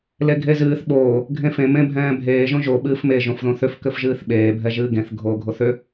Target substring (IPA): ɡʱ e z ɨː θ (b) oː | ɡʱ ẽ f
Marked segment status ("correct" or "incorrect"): incorrect